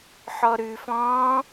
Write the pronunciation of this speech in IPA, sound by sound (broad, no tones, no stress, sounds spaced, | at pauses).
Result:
ħ ɔ ɾ ʉ f ɔ̃ː